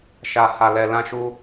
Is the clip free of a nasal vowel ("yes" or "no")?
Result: no